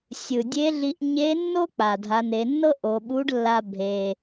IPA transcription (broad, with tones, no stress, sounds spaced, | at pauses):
sʲ ɯ˩ dʲ e˧˥ ɮ i˧ ʔ ɲ e˧˥ nː o˥ k͡p a˩ dʱ a˩˧ n e˩˧ nː ɤ˥ ʔ o˩˧ ɓ u˧˥ ɖ lː a˧ bʱ e˩